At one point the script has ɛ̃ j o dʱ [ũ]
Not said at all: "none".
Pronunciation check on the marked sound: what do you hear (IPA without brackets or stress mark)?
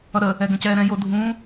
ũ